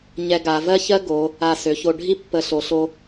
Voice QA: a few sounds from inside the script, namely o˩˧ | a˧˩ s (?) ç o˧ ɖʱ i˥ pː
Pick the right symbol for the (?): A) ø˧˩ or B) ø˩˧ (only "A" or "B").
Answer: B